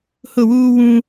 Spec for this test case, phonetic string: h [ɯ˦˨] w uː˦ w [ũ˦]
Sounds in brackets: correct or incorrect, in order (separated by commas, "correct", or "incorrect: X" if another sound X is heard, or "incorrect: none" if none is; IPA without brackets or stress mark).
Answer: incorrect: ʊ˦˨, correct